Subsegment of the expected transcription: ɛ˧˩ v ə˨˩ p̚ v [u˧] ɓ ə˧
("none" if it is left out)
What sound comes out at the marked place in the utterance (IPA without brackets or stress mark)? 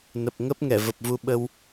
u˧